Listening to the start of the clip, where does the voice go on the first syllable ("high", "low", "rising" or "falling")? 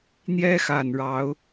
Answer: high